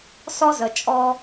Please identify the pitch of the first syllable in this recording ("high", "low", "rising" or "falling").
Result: high